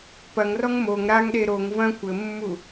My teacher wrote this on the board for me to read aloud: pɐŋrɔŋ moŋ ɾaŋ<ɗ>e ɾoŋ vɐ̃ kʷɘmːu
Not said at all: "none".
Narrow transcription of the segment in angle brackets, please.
ɗ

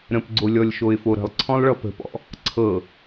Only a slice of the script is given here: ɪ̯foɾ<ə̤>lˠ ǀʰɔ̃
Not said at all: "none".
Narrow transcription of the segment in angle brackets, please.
ə̤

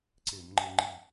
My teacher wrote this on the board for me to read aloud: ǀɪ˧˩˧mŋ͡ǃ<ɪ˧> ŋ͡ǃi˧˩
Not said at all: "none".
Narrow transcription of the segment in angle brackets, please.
ɪ˧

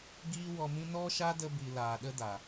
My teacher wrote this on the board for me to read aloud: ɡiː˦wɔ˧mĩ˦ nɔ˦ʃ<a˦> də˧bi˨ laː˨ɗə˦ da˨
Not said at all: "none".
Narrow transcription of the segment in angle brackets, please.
a˦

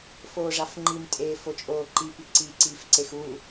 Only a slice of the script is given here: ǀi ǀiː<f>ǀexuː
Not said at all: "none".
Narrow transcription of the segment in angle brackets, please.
f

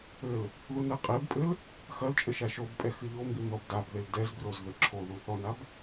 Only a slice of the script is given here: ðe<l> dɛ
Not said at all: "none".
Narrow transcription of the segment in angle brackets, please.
l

